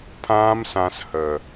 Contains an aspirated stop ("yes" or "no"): yes